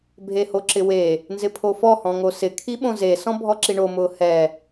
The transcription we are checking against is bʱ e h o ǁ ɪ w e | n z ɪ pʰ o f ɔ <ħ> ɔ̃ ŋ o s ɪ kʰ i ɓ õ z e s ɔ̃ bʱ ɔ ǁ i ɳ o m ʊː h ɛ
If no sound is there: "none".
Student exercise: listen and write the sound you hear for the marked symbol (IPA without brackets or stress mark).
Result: h